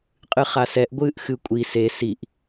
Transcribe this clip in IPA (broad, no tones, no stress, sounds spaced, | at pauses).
qʼ ɨ χ a s ɛ ʔ ɡʷ ɨː ʔ x ɨ kʷʼ i s e s i ʔ